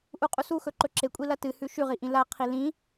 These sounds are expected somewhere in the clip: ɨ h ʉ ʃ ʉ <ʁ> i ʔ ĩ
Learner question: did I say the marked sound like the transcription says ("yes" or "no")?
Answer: yes